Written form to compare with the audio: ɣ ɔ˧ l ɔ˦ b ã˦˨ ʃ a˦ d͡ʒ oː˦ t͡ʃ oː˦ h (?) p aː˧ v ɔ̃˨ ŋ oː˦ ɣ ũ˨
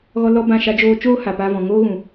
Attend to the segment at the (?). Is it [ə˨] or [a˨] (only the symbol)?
a˨